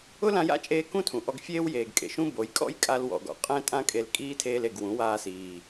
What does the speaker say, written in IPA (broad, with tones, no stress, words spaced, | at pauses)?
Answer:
ʊ˦lã˧ja̰˦t͡ʃʼeː˧ kũ˦tʰũ˨ ʔɔ˧ɡfʲeː˦wjeː˨ɡ kʼḛ˨ʃũ˦bo˨˦j kʼɔ̰˦jkʼa˧lwɔ̰˨ɡɔ̰˨ qʼɛ̃˦tʼã˦kʼe˧l kʼiː˦tʰeː˧le˨ɡ wũ˨˦waː˧ siː˨